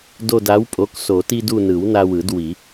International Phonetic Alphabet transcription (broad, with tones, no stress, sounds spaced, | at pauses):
d o˦˨ d a˨˥ w pʼ o˨˥ k s o˨˩˦ t i˦ d u˦˨ n ɯ˨˩˦ w n a˦ w ɯ˨˩˦ d w i˨˩˦